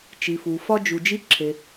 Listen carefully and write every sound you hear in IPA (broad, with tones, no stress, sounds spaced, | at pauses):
t͡ʃ i˩ f u˩ f ɒ˧ d͡ʒ u˩ d͡ʒ i˧ ǁʰ e˩